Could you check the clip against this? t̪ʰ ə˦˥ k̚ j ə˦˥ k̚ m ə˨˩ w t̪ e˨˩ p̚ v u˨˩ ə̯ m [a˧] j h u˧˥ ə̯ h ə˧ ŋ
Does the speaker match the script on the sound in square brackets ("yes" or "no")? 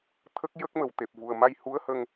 yes